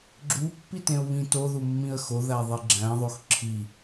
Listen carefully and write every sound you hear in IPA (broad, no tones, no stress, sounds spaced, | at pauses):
ɡ͡ǁ u pː i t ẽ ʊ̯ β ĩ t o ð u mː ĩ ə̯ x o ð æ ðˤ i ɡ͡ǁ æ̃ ðˤ o x ǁʰ i